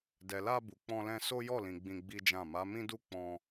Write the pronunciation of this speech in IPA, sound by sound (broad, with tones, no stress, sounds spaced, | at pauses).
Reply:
d ɛ˨ l a˧ b u˨ k͡p ɔ̃˧ l ɛ̃˧ s o˦ j ɔ˦˨ l ĩ˨ ɡ͡b ĩ˧ ɡ͡b i˦ d͡ʒ ã˦˨ m a˨˦ m ĩ˦ d u˦˨ k͡p ɔ̃˧